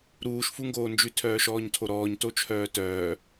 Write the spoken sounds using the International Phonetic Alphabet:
ɾ uː ʃ f u ŋ ɡ oː n d͡ʒ ʉ tʰ œː ʃ ɔː ɲ tʰ o ɾ ɔː ɲ t o t͡ʃʰ œː t œː

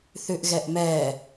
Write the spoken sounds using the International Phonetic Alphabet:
θ ʉ ʔ ɣ ɛ ʔ m ɛ

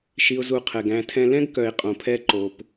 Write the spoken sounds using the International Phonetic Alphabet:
ʃ i˨ ʊ̯ z u˨ qʰ ɛ˨ ɡ æ̃˧ tʰ ɛ̃˧ l ɛ̃˦ ɡ k œ˨ ɪ̯ qʼ õ˨ pʰ ɛ˧ ǃ o˨ p

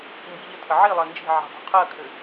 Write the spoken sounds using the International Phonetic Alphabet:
m b i ʎ ə tʰ ə ʕ i lˠ ɜ n d͡ʒ i̤ ʕ i̤ dˤ o̤ qʰ ɜ kʰ ɘ

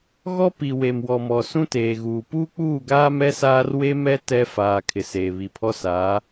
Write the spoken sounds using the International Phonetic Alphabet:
ɣ ɔ˦ p i˨ w e˨ m w ɔ˨ m ɔ˨ s ũ˦ t eː˨ ɣ uː˨ p uː˦ k͡p uː˦˨ ɡ aː˦ m ɛ˦ s aː˦ r w e˦ m ɛ˦ t ɛ˦ f aː˨ kʰ ɪ˨ s eː˨ β i˨ pʰ ɔ˦ s aː˨˦

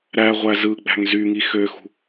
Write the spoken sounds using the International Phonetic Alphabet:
ɾ æ ʁʷ æ z ɯ ɡ͡b æ̤ ŋ z y ŋ i x ø x ṳ

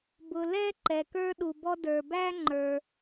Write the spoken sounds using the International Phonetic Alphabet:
b ʊ˨ l ɛ˥ ǃ ɛ˨ k ə˞˥ ɗ u˨ b ɔ˥ d ə˞˨ b æ˥ ŋ͡ǃ ə˞˨

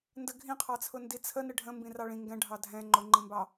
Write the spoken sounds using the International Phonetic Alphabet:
n d ə ɡʱ ĩ qʰ ɑ t͡sʰ ʊ n d i t͡sʰ ə n ɪ ɖʱ ə̃ m b ĩ r ɑ ɭ ĩ ŋ ɡ ɛ̃ ɖʱ ɑ dʱ ɛ̃ ŋ͡ǃ ʊ ŋ͡ǃ ĩ m b ɑ

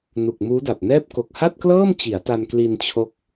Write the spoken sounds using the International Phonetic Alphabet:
n u˨˩ k̚ m uː˦˥ d a˨˩ p̚ n ɛː˥˩ p̚ k o˨˩ k̚ h a˥˩ t̚ k l ɤː˥˩ m t͡ɕ i˩˦ a̯ t a˧ n k l i˧ n t͡ɕʰ o˦˥ k̚

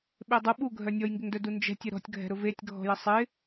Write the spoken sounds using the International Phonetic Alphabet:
ɓ e dˤ ʊ ɓ u ɡʱ œ nʲ ɔ j ŋ ɡ ɪ ŋ d œ d u n d͡ʒ ɛ̤ tʲ ə ɾ ɔ̤ tʲ ɡʱ ɛ̤ ɾ ʊ v e tʲ ɡʱ ɔ̤ j ə sˤ ɪ

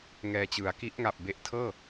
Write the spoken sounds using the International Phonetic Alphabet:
ŋ ɛː˧ t͡ɕ ɯ˩˦ a̯ k i˦˥ ʔ ŋ a˨˩ p̚ b e˨˩ ʔ tʰ ɤː˥˩

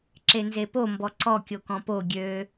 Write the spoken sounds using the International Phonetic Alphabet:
ǁ e n z e p o m b ɔ ǀ ɔ kʲ o k ɔ̃ p o ɡʲ ø

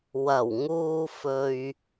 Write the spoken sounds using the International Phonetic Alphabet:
w ɐ˨˩ w ŋ uː˨ f ɵ˨ ɥ

